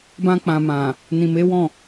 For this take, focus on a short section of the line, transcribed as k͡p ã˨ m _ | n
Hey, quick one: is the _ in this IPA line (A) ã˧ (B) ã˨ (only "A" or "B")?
B